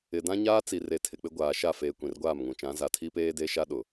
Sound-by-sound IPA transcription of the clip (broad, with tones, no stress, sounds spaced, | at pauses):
ɪ˨ d ã˦ ɲ aː˦ t͡s i˨ r e˨ tʰ ɪ˨ k͡p ɪ˦ ɡʷ aː˨ ʃ a˦˨ f eː˨ kʷ ĩ˨ r ɡʷ aː˦˨ m ŋ ũ˨ t͡ʃ ã˨˦ z a˨ tʰ i˦ p eː˦ d e˦ ʃ a˦ ɗ ʊ˨